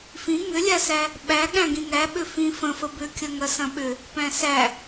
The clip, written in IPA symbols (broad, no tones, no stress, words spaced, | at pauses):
fĩ ŋʏlʲasæ | ɓæ ɠæ̃ɡĩŋæ ɓʏfĩ fə̃fə bʏkʲɐ ŋɐsɐ̃ɓʏ | pæ̃sæ